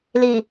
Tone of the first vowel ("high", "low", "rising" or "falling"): low